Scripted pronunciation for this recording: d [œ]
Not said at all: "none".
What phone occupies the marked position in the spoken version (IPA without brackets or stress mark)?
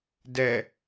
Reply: ɛ